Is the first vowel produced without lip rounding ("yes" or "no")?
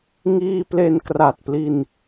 yes